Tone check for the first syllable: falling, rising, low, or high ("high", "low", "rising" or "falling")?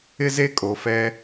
high